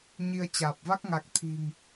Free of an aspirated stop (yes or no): no